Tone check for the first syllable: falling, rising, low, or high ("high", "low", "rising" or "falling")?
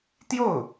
falling